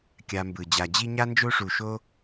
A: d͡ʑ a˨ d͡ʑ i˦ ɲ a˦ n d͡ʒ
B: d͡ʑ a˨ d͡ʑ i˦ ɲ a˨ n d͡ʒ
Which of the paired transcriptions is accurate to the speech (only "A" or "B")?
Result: A